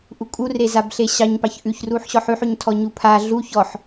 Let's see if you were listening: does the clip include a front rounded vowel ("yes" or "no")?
no